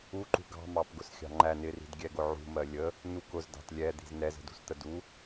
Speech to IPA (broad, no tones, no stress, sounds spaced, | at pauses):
u ǃ ṳ ɡ ɑ̤ m ɑ p ɡ ʊ s xʲ ɑ̤ ŋ͡ǃ æ n ɪ r i̤ d ɡʲ ɛ ɡ ʊ ʕ ṳ m ɜ lʲ ə | n u k ʊ z d ɑ̤ t lʲ ɛ d̪ i̤ z n ɛ z ə̤ d ṳ s t̪ ə d u